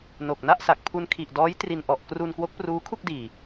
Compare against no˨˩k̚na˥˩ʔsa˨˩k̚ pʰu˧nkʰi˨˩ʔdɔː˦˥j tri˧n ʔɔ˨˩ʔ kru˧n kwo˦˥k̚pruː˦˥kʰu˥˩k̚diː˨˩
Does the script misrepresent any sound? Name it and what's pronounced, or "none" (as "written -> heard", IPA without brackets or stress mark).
none